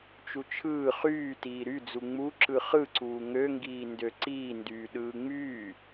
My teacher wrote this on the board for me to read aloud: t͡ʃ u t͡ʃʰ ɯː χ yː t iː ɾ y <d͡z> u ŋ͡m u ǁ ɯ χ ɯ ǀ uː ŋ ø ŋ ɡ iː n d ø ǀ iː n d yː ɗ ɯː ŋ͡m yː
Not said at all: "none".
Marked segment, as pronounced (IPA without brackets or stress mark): d͡z